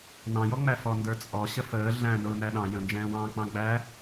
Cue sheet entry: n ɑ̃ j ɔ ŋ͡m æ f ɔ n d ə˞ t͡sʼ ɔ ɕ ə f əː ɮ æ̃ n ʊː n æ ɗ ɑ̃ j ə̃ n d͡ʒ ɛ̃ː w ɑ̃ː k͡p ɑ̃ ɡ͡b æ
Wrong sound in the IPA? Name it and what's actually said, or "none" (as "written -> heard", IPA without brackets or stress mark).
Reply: none